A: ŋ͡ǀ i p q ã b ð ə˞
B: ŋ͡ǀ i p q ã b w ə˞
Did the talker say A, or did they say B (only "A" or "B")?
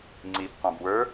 B